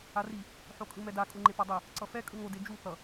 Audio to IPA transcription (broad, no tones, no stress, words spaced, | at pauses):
ari | ħokʼɯmɛda kʼuŋ͡ǃepadˤe | ǀʌfɛ kʼɯŋo ded͡ʒu θʌ